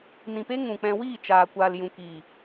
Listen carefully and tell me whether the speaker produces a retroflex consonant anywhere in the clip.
no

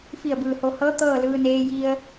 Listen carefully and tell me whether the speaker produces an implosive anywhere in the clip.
no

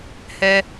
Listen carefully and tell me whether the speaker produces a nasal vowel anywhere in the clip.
no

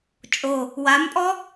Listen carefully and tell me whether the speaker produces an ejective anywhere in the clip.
yes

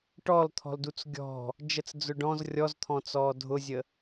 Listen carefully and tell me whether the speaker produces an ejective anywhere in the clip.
no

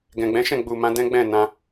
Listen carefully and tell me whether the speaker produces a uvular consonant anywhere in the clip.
no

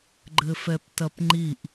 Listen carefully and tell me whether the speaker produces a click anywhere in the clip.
yes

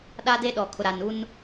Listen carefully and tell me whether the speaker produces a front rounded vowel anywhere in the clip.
no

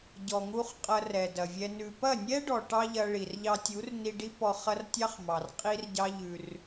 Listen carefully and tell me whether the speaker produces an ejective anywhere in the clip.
yes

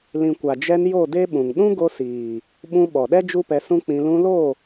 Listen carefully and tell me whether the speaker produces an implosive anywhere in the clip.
yes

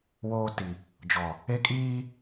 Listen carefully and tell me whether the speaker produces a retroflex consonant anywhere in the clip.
no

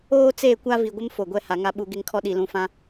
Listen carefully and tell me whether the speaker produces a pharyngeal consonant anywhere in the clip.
no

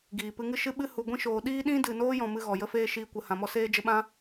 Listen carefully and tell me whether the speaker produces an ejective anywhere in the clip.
no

